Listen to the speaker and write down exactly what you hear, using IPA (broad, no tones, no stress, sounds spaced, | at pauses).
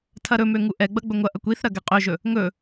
tʰ ɐ ɾ ɵ m ø ŋ u ʔ ɛ ɡ͡b ɐ ɡ͡b ɵ ŋʷ ɐ ʔ ɐ kʷ i θ ɾ ɐ ɡ ɛ qʼ ø ʒ ɵ | ŋ ɵ